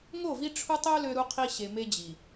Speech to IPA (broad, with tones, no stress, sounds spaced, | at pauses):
ŋ o˦˨ v i˦ ʈ͡ʂʰ u˦ tˤ ø˦ l ø˦ ɾ u˦ qʰ i˦ ɕ e˨ m e˦ d͡ʑ i˨